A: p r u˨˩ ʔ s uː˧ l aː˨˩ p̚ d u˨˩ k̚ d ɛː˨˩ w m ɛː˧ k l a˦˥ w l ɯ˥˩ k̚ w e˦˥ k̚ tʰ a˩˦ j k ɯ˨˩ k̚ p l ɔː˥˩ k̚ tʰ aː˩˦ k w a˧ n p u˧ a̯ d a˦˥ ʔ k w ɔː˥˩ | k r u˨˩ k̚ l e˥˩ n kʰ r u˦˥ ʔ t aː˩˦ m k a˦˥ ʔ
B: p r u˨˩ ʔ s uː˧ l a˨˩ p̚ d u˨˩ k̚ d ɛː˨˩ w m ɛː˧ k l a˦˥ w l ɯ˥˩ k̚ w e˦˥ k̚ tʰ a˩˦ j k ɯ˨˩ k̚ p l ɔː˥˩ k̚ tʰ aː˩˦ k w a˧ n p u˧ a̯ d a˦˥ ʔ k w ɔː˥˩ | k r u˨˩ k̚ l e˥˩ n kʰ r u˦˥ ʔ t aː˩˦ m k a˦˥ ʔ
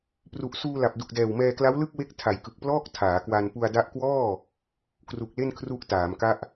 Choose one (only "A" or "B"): B